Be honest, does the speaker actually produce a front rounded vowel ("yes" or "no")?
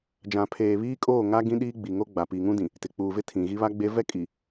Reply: no